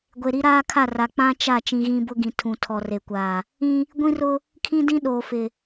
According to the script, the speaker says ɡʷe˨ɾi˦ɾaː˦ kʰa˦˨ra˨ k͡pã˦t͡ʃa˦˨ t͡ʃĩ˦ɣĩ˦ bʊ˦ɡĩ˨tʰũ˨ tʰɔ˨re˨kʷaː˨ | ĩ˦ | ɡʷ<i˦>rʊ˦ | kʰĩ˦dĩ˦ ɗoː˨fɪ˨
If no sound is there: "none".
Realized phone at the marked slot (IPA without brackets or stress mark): ĩ˦